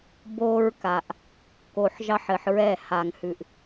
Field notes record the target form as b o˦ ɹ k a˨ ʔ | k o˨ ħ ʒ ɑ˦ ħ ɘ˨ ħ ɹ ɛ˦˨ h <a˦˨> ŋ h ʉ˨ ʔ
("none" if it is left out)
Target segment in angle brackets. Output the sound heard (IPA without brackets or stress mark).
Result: a˨